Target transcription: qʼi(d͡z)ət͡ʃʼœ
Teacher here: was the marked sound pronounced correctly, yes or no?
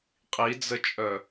yes